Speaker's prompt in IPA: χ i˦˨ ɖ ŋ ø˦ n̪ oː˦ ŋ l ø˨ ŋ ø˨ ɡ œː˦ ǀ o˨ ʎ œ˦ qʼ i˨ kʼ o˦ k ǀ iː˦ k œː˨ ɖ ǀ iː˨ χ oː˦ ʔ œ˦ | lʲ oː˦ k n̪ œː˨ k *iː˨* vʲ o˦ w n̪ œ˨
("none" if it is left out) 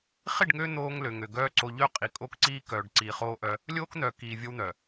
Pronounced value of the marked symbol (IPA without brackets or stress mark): iː˨